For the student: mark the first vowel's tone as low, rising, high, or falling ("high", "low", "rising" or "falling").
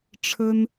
high